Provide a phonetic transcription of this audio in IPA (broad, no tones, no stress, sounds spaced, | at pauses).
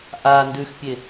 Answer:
ʔ a n d ʉ x pʲ e